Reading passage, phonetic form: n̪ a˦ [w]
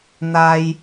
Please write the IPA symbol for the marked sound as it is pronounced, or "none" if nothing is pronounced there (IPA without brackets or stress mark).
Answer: j